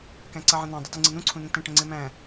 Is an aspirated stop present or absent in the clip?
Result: present